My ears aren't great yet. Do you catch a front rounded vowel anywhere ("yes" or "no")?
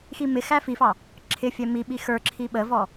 no